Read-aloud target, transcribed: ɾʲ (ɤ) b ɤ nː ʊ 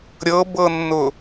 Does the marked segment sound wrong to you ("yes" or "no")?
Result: no